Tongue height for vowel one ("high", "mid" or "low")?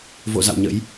mid